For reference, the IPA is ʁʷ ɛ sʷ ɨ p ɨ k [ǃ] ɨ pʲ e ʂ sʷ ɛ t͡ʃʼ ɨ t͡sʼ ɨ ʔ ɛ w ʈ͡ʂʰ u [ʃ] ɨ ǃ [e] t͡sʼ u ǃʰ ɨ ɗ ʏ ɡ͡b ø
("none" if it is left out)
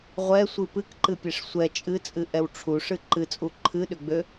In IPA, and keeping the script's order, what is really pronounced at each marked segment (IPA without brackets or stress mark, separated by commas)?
ǃ, ʂ, ɨ